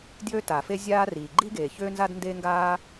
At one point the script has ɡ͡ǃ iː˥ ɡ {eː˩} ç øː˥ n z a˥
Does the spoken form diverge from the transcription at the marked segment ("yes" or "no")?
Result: no